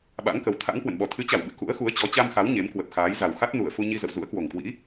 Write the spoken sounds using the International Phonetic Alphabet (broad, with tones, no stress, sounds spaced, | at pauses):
ɓ a̰˧˥ ŋ k ə˨˦ w t̪ʰ a̰˧˥ ŋ k w ə̰˧˨ n ɓ ɔ˨˩ t̪ʰ ɨ˨˦ t͡ɕ a˧˩ w ɓ ɨ̰˧˨ k ṵ˧˥ ə̯ x u˨˦ ə̯ t͡ɕ ɔ˨˦ t͡ɕ a˧ m x a˨˦ w ɲ e˨˦ m k w ə˨˩ p̚ x aː˨˦ j z a˨˩ w x a˦˥ t̚ n u˧˩ ə̯ f u˧ ɲ i˧ z ə̰˧˨ w z ṵ˧˥ ə̯ k w o˨˩ ŋ k w ḭ˧˥